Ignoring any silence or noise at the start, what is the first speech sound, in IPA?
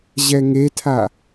ʑ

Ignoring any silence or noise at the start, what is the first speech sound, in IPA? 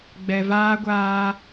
ɡ͡b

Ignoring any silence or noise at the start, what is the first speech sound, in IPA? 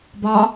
b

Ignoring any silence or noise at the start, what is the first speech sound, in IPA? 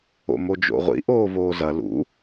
o̰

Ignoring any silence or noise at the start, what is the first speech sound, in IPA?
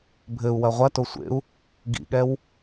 bʱ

